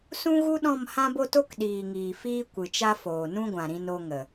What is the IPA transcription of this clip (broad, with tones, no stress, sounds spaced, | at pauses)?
s ũ˦ ɣ u˦ ɗ ɔ̃˦˨ m h ã˦ b o˦ t o˦ k ɗ iː˨ ŋ iː˨ f iː˦ kʷ ɨ˨ t͡ʃ a˦ f oː˨ n ũ˦ ɡʷ ã˨ ɾ ĩ˧ n o˧ ŋ ə˨